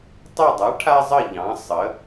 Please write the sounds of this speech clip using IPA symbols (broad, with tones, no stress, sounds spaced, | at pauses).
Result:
tˤ ə˦˨ dˤ a˨˥ ʈʰ a˦ zˤ ə˦˨ ʎ ɑ̃˨˥ sˤ ə˩˧